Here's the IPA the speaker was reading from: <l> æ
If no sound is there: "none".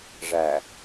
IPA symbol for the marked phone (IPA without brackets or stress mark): ʐ